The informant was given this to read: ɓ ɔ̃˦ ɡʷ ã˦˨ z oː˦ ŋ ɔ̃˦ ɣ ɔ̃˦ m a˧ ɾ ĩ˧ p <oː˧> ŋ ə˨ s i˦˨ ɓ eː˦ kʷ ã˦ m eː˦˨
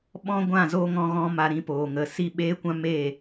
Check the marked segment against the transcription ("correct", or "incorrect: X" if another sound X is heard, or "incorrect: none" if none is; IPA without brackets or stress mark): incorrect: oː˨